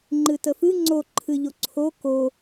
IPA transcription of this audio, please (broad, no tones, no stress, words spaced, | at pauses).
ŋ͡ǃɨtəfɨ ŋ͡ǀo ǃʰɨʎoǀʰo ko